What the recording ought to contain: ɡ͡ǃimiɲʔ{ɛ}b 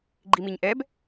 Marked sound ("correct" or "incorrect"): correct